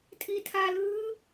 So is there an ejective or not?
yes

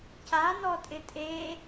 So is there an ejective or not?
yes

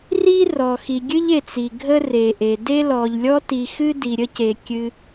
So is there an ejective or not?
no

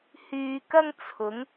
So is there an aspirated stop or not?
yes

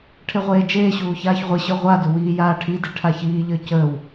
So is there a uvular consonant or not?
yes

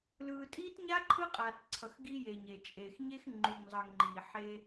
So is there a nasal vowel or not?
no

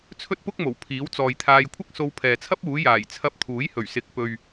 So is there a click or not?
no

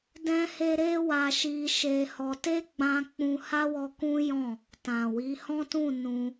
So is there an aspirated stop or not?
no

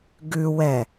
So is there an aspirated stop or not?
no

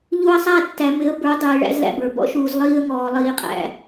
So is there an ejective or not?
yes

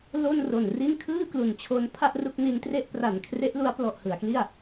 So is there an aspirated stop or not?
yes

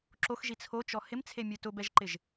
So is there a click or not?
yes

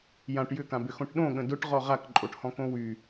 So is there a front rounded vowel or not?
yes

